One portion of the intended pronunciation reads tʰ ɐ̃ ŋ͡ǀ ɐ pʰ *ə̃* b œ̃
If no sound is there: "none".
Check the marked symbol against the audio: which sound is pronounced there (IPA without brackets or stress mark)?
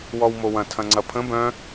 ə̃